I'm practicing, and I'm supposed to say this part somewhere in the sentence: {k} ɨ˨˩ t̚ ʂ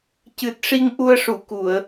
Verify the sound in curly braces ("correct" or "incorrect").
incorrect